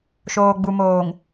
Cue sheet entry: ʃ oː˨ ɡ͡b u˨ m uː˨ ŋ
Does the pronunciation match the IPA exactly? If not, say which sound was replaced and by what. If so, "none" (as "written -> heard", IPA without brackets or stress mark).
uː˨ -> oː˨